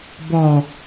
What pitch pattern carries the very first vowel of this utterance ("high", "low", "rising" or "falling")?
low